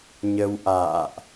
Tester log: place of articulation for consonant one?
palatal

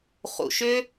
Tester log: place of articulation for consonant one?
uvular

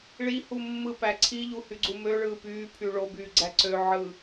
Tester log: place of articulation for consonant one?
retroflex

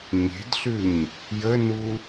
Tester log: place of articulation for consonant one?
palatal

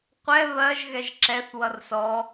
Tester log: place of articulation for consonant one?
uvular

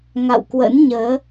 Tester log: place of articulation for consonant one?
velar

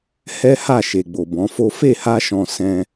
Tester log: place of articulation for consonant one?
glottal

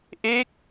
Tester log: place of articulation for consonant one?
glottal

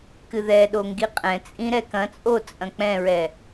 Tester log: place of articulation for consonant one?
velar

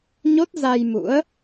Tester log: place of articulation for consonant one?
palatal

